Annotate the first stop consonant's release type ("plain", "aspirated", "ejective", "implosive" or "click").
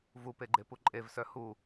plain